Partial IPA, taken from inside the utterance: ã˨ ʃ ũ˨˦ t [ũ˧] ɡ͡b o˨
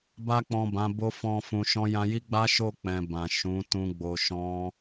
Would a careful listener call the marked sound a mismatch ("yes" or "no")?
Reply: no